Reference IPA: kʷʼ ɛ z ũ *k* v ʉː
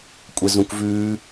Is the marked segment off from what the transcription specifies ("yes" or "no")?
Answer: no